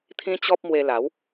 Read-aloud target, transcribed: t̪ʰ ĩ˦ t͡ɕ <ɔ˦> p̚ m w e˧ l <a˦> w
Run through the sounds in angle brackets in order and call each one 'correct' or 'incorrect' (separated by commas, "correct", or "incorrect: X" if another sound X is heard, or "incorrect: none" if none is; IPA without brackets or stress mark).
correct, incorrect: a˨˦